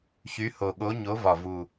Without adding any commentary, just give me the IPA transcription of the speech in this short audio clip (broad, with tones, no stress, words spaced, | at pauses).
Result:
çy˨˦ho˨˩ɠo˨˦ ɲo˨˦vɒ˨˩ vu˨˩